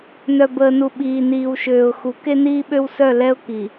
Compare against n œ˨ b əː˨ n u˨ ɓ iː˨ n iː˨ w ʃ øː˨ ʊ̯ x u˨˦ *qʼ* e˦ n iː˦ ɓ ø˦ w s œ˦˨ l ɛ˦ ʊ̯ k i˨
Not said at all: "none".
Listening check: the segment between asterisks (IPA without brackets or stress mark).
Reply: k